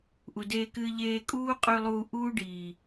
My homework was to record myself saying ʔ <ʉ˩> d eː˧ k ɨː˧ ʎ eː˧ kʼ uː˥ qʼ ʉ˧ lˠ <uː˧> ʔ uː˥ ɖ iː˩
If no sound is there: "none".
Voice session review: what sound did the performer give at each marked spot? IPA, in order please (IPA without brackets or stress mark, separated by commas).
u˩, uː˧